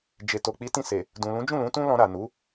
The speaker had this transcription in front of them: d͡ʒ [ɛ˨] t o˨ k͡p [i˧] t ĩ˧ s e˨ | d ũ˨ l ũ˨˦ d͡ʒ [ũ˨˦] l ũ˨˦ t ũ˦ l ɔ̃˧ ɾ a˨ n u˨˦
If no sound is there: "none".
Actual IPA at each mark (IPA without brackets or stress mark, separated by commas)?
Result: e˨, i˨˦, ũ˦˨